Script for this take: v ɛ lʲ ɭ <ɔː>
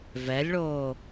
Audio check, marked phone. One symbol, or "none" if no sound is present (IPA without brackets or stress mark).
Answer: oː